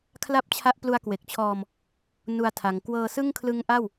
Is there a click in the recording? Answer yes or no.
no